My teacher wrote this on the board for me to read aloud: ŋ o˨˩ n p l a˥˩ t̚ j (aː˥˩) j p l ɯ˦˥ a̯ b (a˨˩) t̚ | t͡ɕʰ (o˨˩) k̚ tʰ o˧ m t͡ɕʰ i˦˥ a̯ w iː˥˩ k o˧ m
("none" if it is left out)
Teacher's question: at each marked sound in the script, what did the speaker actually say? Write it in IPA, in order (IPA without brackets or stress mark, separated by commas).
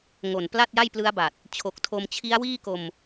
a˥˩, a˨˩, o˨˩